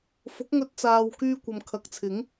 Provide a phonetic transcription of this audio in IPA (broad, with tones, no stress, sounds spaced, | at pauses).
f ʊ˨˥ k̚ ŋ ɵ˧ t̚ t͡s aː˨ w k yː˧ kʷ ɐ˨ m kʰ ɐ˨˥ k̚ t͡sʰ ɪ˨˥ ŋ